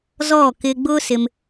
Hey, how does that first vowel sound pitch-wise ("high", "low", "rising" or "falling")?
falling